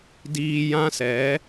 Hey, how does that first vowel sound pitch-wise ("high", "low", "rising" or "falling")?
low